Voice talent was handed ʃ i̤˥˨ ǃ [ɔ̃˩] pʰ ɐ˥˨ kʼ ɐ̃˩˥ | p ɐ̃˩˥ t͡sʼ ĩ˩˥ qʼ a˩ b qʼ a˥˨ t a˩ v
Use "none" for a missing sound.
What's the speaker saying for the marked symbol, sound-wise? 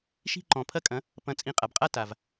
ɔ̃˩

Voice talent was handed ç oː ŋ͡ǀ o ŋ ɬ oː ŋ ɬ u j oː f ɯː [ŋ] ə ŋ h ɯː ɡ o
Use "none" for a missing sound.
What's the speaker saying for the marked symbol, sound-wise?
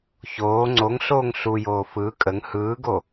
kʼ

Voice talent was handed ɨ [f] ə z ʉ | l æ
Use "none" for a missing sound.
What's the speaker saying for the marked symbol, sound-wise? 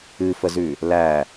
f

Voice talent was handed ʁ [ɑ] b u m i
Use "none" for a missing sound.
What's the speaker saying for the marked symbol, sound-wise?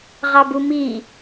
ɑ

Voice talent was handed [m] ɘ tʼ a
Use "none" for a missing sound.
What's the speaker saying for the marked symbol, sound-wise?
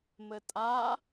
m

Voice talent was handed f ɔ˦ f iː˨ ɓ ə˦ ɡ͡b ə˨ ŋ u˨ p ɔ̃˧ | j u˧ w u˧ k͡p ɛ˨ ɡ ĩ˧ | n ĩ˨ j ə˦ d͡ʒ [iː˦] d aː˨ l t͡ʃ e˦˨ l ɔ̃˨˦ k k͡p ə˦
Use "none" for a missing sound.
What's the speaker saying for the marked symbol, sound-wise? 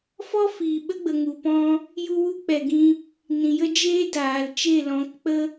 eː˦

